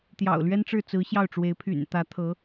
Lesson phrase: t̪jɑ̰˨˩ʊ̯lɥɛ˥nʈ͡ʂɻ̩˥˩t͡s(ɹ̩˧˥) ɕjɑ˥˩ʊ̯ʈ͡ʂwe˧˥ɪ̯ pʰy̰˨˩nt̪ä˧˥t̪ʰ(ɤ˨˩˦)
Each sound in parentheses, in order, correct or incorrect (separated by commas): correct, incorrect